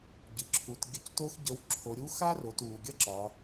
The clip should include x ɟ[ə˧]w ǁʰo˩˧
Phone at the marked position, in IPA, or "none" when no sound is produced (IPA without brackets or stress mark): ə˧˥